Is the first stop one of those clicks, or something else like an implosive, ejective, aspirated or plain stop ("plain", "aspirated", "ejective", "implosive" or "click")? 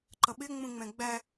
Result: click